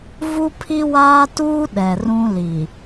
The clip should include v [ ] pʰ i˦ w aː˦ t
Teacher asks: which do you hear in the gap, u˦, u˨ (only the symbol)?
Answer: u˦